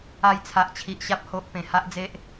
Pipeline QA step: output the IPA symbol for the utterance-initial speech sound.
a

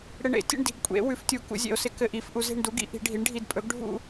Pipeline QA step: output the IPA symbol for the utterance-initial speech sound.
ɽ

